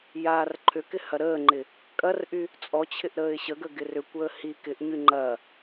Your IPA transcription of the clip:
j aː r ǃʰ ʏ k ɪ h ɐ ɾ əː ŋ͡ǃ ɪ | kʼ ɐ r ʔ y | t͡sʼ ɔ t͡ɕʰ ɪ ʔ ɾ əː ɪ̯ ɕ ə ɡ ə ɡ ɪ r ʏ kʷ əː h i k ɪ ʔ ɲ y ŋ͡ǃ ɐ

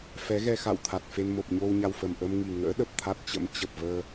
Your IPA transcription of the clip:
f ɛ˨˦ ɣ ɛ˧ x a̰˧˨ w t̪ʰ a˨˩ t̚ f e˧ n m o˨˩ p̚ ɲ o˧ w ɲ a˧ w f ə˨˩ m ʔ ə˧ m ŋ i˨˩ ŋ ə̰ː˧˥ ɗ ə˨˩ p̚ t̪ʰ a˦˥ t̚ t͡ɕ ə̰˧˥ m t͡ɕ ə˨˩ p̚ v əː˧

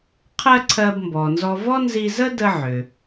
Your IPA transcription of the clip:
qʰ ɜ˧ ǀʰ ɜ˧ b m b ɔ˩ n z ɔ˧ v ɔ˥ n z i˧ z ə˥ d ə˧ ʕ ʏ˩

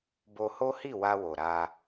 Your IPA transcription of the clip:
b o˧ h o˦ h i˦˨ w a˧ w o˨ ɾ a˧

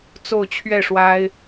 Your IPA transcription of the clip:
t͡s o˥˧ ʊ̯ t͡ɕʰ ɥ ɛ˥˩ ʂ w a˥ ɪ̯

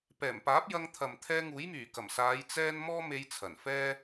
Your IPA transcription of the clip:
p ɛː˨˩ m p aː˨˥ p̚ j ɐ˧ ŋ t̪ʰ ɐ˨ m t̪ʰ ɛː˧ ŋ uː˨˥ j m yː˨˩ k ɐ˨˩ m s aː˨˧ j t͡s ɛː˥ n m ɔː˥ m e˧ j t͡sʰ ɐ˨˩ n f ɛː˥

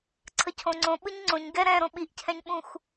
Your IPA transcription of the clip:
ǀʰ ə cʰ õ ŋ͡ǀ õ ɓ ɯ ɲ ŋ͡ǀ õ ɲ ɡ ɛ ɾ ɛ̃ ɾ õ ɓ i ʔ cʰ ɛ̃ ɲ ɓ ũ x

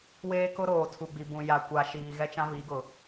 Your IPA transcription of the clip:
w eː˦ k ʊ˦ ɾ oː˨ tʰ u˨ ɡ͡b i˨ b ũ˨ j a˨ kʷ a˨ ʃ iː˨ ɣ ɛ˦ t͡ʃ ã˦ β i˨˦ ɡ ʊ˨

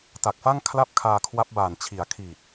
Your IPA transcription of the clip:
t a˨˩ k̚ f a˥˩ ŋ kʰ l a˥˩ p̚ kʰ aː˧ kʰ w a˦˥ p̚ b aː˨˩ n t͡ɕʰ i˩˦ a̯ kʰ iː˨˩ t̚

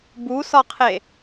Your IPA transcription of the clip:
b u s ɒ qʰ e

